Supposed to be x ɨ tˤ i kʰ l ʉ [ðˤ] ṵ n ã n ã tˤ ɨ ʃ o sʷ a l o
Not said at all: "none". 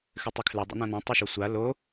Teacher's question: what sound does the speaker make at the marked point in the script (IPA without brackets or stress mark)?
dˤ